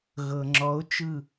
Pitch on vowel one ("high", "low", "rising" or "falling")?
low